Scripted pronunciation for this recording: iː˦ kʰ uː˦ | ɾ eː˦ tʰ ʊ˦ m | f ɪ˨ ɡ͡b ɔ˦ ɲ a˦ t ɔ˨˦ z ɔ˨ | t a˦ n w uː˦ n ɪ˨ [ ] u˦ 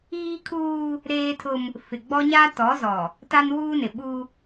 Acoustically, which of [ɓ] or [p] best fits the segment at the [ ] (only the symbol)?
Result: ɓ